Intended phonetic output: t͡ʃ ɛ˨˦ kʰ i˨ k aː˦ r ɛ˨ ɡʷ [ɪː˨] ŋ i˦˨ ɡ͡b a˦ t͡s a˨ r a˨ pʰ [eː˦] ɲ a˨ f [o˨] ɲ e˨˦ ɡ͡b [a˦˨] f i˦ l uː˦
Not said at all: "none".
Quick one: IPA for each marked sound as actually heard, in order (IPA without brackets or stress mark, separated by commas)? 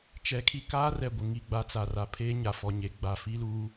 ɪ˨, eː˦, ɔ˨, a˨